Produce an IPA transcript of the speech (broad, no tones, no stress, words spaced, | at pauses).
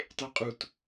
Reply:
tˤeqʼut